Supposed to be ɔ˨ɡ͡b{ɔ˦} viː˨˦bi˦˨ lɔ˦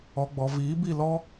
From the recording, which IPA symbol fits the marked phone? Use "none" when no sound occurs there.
ɔ˨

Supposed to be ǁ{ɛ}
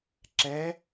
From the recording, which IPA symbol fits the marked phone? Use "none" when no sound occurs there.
ɛ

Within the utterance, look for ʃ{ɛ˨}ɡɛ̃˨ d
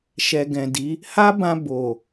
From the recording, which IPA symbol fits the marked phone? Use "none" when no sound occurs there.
ɛ˨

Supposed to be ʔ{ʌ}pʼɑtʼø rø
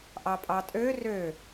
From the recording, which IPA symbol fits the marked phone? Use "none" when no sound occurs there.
ɑ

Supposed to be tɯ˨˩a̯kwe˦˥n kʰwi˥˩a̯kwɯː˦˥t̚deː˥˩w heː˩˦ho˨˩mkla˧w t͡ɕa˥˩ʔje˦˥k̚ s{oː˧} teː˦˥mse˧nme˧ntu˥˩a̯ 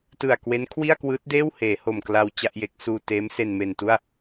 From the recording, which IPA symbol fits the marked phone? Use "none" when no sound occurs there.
uː˧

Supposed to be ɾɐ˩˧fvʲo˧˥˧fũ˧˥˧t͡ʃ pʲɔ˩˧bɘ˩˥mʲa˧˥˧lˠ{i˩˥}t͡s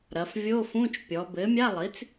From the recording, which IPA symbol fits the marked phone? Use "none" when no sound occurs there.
i˩˥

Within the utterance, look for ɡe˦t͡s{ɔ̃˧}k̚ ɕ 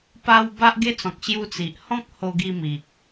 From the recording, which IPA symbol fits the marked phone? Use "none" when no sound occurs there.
ɔ̃˨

